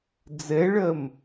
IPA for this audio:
d͡z ɛ ɭ ɜ m

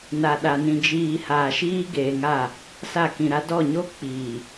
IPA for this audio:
n a˨ ɗ a˨ n ĩ˨ d͡ʒ iː˨ h aː˨ ʃ iː˦ ɡ eː˨ ŋ a˦˨ | s a˦˨ k ĩ˨ ɾ a˦ d ɔ˦˨ ɲ o˦ k͡p iː˨

